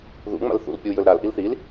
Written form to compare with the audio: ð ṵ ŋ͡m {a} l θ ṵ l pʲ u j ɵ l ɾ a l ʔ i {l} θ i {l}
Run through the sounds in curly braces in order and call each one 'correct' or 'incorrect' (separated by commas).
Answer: incorrect, correct, correct